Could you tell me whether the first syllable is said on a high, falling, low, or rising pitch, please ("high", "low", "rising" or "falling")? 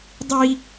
high